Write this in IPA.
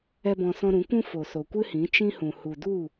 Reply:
ɛ˦bɔ̃˧ sɔ̃˧ɾũ˨˦kʷũ˦ fo˨so˨kʷɨ˦hĩ˨˦ t͡ʃĩ˦hũ˨ hu˨du˦˨

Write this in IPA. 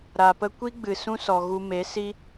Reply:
ɾa˨pə˧kʷi˦ɡ͡bɨ˨ sũ˦sɔ˨ɣu˧ me˨˦si˦

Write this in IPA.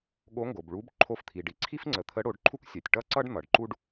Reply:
ɠo˧˥ŋɡo˩bɭu˧˥b ǃʰo˧ft̪ʰi˩ ɖi˩ǀʰi˥fŋ͡ǀə˩˧ t̪ʰə˧˥ɽo˩˧ɖǃʰu˥k sʲɛ˩tʲʈʌ˥ǀʌ˥ɖ n̪ʌ˩ɖǃu˥ɖ

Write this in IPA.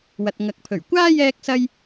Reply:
wɐ˨t̚ ŋɐ˨k̚pʰɵ˨˩ɥ kʷaː˥ jɛː˥k̚sɐ˥j

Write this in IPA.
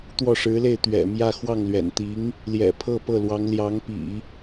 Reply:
t̪wɔ˥˩ʂɻ̩˧˥le˥˩ɪ̯ t̪ɥɛ̰˨˩ mjä˥˧xwɑ˥˩ŋlɥɛ̰˨˩n t̪i˧˥ŋ | ljɛ̰˨˩pʰɤ˥˧pɤ˥˩lwɑ˧˥ŋ ljɑ˧˥ŋpḭ˨˩˦

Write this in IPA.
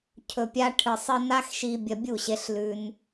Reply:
cʰɵ˨pʲa˧ ʈʰɨ˨sˤ ɨ˧na˦xʃi˧ bʲɐ˧bʲu˦˨ɕe˧ɬ lʉ˧n

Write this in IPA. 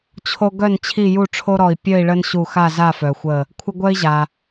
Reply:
t͡ɕʰo˦ɡœ˥˨n t͡ɕʰi˥˨ju˥˨ ʈ͡ʂʰo˦ɾɔ˧˩i̯ pʲœ˥˨i̯ɭə˦nɕu˧˩ xa˥˨za˥˨fœ˩xʷə˧˩ | kʷʰə˦ ɡʷœ˦i̯ʑa˩

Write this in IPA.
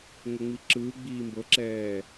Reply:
ŋoŋ͡miǁɯː ɡ͡biːmbɤǁɛː

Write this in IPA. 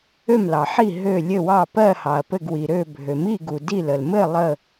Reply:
ø˥˩mlɑ˩ħi˥˩ ɦø˥˩ lʲɘ˥˩wɑ˥˩ pɜ˥˩hɑ˩ɐ̯ pɘ˥˩ɡwi˩ɾø˥˩ bʱø˩mi˥˩ɡu˩ di˥˩lə˩l mɘ˥˩ lˠə˥˩

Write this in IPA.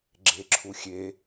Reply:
ɡ͡ǁeǁʰuxʲe

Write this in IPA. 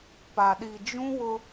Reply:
pa˨ɗi˨d͡ʒũ˦wʊ˦

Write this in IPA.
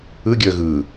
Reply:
ɯ ɡʲəːɣɯ

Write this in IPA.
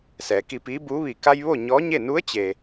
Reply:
sɛː˩˧ki˧piː˧˥buː˧˥ ʋi˩ ka˧j ʋo˥˨ ɲɔː˧˥ɲe˥˨ nu˧˥ə̯t͡ɕe˩

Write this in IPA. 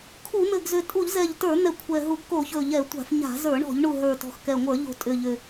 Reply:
kʰu˧˩˧n̪ɘ˨˩ɡzʏ˨˩ tʼu˧˩˧ʎzɛ˨˩ʎtə˞˧˩˧n̪ɛ˨˩ kʷʰɛ˨˩ɦu˧˩˧ɡko˧˩˧çɵ˨˩ ʎɛ˧˩˧ tʷa̤˧˩˧fɲa̤˧˩˧ zə˞˧˩˧ɳɔ̤˧˩˧ʎɳu˨˩ ɦə˞˨˩tɔ̤˨˩xkɛ˨˩ŋʷə˞˧˩˧ ʎo̤˨˩ tʼʏ˨˩ʎʏ˨˩

